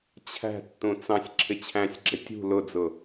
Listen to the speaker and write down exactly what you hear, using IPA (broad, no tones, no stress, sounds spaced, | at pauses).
t͡ɕʰ æ̤ tː ũ t͡s ɑ̃ sʲ ǁʰ ɪ t͡ɕʰ æ̃ sʲ ɡ͡ǁ ɪ tʲ ṳ l ʊ d͡z ʊ